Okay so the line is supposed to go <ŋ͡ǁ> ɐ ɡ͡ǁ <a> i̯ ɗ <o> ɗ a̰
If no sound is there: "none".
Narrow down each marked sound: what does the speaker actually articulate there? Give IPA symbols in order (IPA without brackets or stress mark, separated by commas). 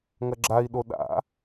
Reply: ŋ, a, o